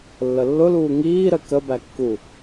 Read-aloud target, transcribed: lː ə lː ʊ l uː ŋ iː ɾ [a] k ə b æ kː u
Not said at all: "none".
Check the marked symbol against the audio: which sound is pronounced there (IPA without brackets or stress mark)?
ə